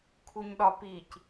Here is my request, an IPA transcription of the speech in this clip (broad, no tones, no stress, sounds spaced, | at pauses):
kʰ u ɲ ɗ ɒ p i c